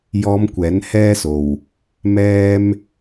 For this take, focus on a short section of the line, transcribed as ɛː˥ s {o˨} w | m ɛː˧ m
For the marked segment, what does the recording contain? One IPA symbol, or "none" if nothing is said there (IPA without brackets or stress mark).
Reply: o˨